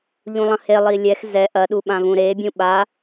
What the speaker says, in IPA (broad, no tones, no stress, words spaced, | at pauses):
ʎũlˠɐ̃he lˠilʲɛx zɛ ʔɐ ɗuɓãvũɾe bʲũɓa